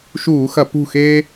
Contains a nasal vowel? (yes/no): no